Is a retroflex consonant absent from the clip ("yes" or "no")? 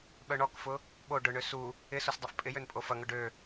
no